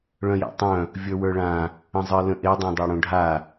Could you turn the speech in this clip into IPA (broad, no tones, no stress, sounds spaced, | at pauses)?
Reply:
ɭ œ̃ j a̰ tˤ œ̃ | vʲ ə˞ w ə˞ ɭ ã | ə̃ zˤ ə˞ l ə̃ ʔ e dˤ õ dˤ ə˞ ɽ õ ɖʱ a